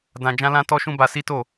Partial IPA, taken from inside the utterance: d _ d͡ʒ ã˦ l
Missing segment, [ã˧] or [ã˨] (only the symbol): ã˧